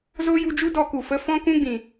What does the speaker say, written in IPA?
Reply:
z o˦ j u˧ d͡ʒ u˦ d ɔ˧ k u˨ f ə˧ f ɔ̃˦ k ũ˦ ɡ͡b ĩ˨

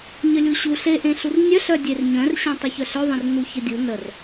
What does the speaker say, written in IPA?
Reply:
ɲ ə lʲ u ɕ u ɬ e ʔ ẽ ɬ u r nʲ œ ɬ œ dʲ e r ɲ œ̃ r ɕ ẽ tˤ y ç œ ɬ œ ðˤ ẽ r n u ç ə dʲ u n ə r

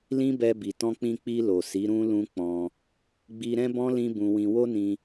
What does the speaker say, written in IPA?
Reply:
l ĩ˦ b ɛ˧ b i˨ t ɔ̃˧ k͡p ĩ˧ k͡p i˧ l o˨ s i˨˦ ɾ ũ˦ l ũ˦ k͡p ɔ̃˧ | ɡ͡b i˧ ɾ ɛ̃˦ b ɔ̃˦ l ĩ˦ b ũ˧ w ĩ˧ w o˦ n ĩ˧

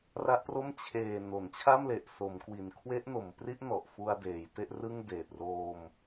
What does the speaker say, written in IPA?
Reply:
r a˦˥ ʔ p r o˥˩ m t͡ɕʰ eː˨˩ n o˩˦ n t͡ɕʰ a˥˩ m l e˨˩ ʔ s o˩˦ m k w i˨˩ n kʰ w e˦˥ ʔ n o˩˦ m p r i˦˥ ʔ n ɔ˨˩ ʔ f u˧ a̯ d eː˩˦ j t e˥˩ ʔ r ɯ˥˩ ŋ d eː˨˩ t̚ r oː˧ m

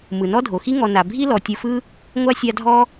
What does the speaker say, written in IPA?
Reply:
m ɯ˩ n ɔ˥ dʱ o˩ x i˥ ŋ ɔ˨ n a˩ bʱ i˥ l ɔ˩ tʲ ɯ˨ f ɯ˦ | ŋʷ a˥ sʲ a˦ dʱ ɔ˥

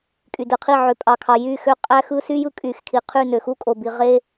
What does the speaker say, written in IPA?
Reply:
kʼ y˨ d ɯ˨ qʰ i˦˨ ʕ ø˨ pʼ ɑ˨ kʰ ɑ˨ j y˦˨ x ø˦ qʼ æ˦ x ɯ˦ s y˦ j ɯ˦ kʼ y˨ x kʰ i˨ qʰ y˦˨ n ø˨ x u˦ kʼ o˨ b i˨ ʁ e˦

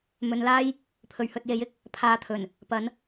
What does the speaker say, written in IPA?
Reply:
m ɵ˨˧ n l aː˥ j | pʰ ɵ˨˩ ɥ h ɵ˨ t̚ j e˨˥ j ɪ˨˥ k̚ | pʰ aː˨˧ t̪ʰ ɵ˨˩ n | p ɐ˨˥ n

